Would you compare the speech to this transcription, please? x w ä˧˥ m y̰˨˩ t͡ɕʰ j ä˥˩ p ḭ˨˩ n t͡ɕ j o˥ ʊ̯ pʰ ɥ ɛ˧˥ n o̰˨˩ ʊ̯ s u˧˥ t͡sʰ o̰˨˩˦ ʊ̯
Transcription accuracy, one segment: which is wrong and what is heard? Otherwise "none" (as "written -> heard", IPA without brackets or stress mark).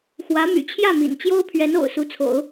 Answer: p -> m